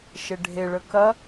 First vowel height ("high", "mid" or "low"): mid